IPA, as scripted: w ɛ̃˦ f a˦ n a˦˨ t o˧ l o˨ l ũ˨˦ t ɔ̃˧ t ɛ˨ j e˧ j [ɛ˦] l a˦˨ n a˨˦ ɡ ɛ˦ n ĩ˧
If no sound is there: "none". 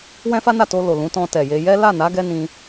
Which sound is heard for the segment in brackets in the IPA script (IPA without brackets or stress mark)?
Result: ɛ˦